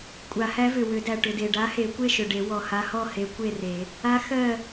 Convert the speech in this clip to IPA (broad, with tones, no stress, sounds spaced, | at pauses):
kʷʼ a˨˩˦ h æ˧˥ v ʏ˨˩ w ʏ˨˩˦ d æ˨˩ ʈ ʏ˨˩ d e˨˩ ɖ a˧˥ h e˨˩˦ kʷ e˥˨ ʃ ʏ˨˩ ɖ e˨˩˦ w ɔ˨˩ h a˧˥ h ɔ˥˨ h e˧˥ kʷ e˥˨ r e˨˩˦ | a˧˥ x ɜ˥˨